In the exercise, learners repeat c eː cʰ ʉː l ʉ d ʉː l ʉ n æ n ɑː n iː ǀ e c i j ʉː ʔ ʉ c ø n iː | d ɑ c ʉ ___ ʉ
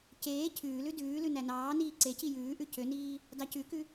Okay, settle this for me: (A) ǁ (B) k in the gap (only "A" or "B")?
B